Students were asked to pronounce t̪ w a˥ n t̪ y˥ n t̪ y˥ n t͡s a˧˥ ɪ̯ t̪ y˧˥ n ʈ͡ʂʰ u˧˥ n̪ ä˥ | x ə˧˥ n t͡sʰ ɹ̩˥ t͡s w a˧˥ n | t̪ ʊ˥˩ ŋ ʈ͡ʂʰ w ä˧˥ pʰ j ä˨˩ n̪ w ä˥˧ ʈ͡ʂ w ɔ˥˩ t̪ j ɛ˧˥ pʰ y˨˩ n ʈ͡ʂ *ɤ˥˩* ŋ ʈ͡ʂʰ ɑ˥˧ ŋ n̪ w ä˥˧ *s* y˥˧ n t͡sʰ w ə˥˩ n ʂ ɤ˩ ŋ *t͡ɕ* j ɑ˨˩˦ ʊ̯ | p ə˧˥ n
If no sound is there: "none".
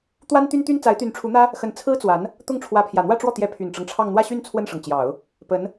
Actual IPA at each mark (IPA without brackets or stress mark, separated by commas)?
ɤ˦, ɕ, t͡ɕ